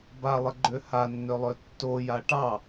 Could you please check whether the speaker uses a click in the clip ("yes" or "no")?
yes